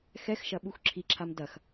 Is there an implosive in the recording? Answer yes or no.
yes